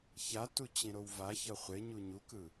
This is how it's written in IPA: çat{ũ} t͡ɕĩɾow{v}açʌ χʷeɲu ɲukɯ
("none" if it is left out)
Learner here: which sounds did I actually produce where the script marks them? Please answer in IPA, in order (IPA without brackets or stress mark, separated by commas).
u, v